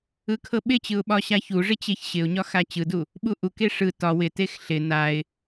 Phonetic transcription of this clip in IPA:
ɯ kʰ ɤ ɓ ɪ t͡ɕ ɯ ʊ̯ ɓ ɒ ɕ a ç u ʐ ɪ t͡ɕ e ç ɕ ɪ ʊ̯ ɲ ɒ x a t͡ɕ ɯ d u | ɓ u ʔ u k e ʂ ɯ t ɒ w ɪ t e x ɬ ɪ n a ɪ̯

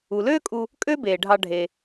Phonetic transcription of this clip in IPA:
u˩ l øː˦ kʼ u˨ | kʼ ø˥ b eː˩ ɖʱ ɑ˨ ɖʱ e˩

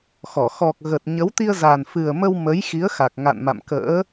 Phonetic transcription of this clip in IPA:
x ɔ˧˩ x ɔ˨˩ k̚ ɣ ə˨˩ t̚ ɲ ə˨˦ w t̪ i˧ ə̯ z a˨˩ n f ɨ˨˩ ə̯ m ə˧ w m ə˨˦ j x i˨˦ ə̯ x a˨˩ k̚ ŋ a̰˧˨ n m a̰˧˨ m k ə̰ː˧˥

